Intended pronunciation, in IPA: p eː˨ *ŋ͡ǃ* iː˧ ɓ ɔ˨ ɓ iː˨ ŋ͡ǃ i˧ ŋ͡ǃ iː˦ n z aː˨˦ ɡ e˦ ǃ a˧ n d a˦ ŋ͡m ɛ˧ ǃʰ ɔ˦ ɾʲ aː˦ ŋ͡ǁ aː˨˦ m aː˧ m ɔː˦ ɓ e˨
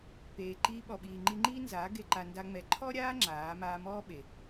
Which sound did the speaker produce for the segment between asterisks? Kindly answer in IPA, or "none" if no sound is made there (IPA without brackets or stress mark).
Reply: ǃ